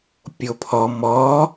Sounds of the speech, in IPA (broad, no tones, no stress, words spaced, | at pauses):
pʲopʰɔ mɔ